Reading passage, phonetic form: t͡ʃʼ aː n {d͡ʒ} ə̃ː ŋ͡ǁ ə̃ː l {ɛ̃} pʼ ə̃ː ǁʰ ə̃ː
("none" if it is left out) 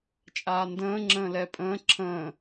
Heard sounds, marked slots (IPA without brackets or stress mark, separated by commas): d, ɛ